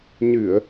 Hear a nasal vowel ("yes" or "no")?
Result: no